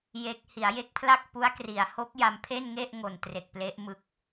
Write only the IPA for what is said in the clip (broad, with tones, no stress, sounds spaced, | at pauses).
j e˦˥ k̚ h i˩˦ a̯ j e˦˥ k̚ pʰ l a˥˩ k̚ p u˦˥ a̯ k r i˩˦ a̯ h o˦˥ k̚ j a˧ m pʰ e˥˩ n ŋ e˥˩ ʔ ŋ o˨˩ n t r e˨˩ k̚ p l e˦˥ ʔ m ɯ˦˥ k̚